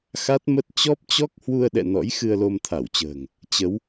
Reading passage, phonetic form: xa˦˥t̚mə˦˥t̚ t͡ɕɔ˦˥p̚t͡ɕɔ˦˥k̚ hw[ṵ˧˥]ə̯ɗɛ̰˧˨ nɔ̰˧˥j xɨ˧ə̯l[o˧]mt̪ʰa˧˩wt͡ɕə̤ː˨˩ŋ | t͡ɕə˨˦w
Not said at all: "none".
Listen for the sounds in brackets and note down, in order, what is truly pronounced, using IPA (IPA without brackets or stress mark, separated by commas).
u˧, o˧